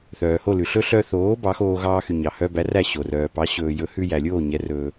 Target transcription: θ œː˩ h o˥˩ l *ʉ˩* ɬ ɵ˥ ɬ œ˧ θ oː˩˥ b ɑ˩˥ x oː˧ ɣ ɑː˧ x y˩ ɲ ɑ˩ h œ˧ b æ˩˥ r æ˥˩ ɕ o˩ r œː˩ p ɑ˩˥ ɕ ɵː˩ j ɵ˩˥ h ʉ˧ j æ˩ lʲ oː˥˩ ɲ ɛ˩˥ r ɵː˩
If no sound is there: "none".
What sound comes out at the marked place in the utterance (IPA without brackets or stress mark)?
ʉ˩